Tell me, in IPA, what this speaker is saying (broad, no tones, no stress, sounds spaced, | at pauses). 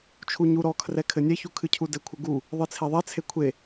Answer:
t͡ʃʰ u ɲ u ɾ ɔ kʰ r ɛ kʰ ɘ nʲ ɛ ç u kʰ ɨ cʰ u d ɘ kʷʰ ɘ ɡ u | ðˤ ɨ t͡sʰ e ðˤ ɛ t͡sʰ e kʷʰ e